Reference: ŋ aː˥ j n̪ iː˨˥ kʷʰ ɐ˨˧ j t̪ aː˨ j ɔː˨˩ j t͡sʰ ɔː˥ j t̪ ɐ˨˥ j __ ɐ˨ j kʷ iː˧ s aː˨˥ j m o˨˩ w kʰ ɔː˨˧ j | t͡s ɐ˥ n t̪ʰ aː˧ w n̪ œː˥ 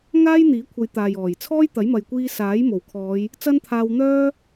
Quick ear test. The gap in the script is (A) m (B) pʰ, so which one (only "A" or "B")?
A